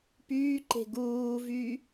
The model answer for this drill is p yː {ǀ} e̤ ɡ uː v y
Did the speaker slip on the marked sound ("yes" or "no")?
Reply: yes